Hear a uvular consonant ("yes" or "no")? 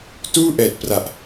no